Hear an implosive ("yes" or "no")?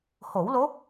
no